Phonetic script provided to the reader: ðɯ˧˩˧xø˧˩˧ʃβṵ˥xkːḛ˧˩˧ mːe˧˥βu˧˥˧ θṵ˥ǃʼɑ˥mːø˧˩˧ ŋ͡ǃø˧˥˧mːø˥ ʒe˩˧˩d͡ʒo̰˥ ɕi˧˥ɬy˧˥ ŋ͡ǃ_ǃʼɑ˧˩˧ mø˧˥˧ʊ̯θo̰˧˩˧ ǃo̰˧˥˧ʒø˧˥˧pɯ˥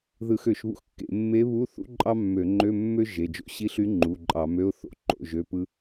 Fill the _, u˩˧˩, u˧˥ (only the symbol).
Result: u˩˧˩